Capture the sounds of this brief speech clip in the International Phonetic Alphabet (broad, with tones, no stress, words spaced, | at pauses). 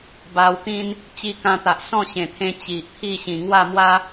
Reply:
ba˧wt̪ĩ˦n | t͡ɕi˧kã˧t̪a˨ʔ sɔ̃˥˧ɕẽ˨˩t̪ʰẽ˧ t͡ɕi˨ʔt̪ʰi˥˧ɕĩ˨˩ ŋwa˥˧mwa˦